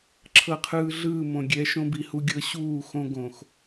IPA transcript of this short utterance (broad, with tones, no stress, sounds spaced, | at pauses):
ǁʰ ɤ˨ qʰ ɯː˨ ɮ ɯː˦˨ m õ˨ ɡʲ ɛ˨˦ ʃ õ˦ b i˨ h u˦ ɡʲ ɤ˦ ɕ uː˦˨ x õ˦ ɡ õ˨ x